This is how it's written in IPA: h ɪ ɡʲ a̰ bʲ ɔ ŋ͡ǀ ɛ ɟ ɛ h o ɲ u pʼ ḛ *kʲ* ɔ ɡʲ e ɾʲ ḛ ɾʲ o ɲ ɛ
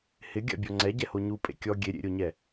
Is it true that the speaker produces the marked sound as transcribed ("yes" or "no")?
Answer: yes